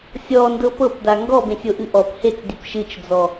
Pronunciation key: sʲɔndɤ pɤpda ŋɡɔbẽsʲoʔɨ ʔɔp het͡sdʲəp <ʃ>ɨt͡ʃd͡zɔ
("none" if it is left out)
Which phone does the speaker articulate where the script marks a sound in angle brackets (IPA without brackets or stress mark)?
ʃ